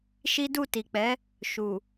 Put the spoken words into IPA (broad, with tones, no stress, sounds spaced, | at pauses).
ʃ i˦ d u˦˨ t i˨ k͡p ɛ˨˦ | ʃ u˨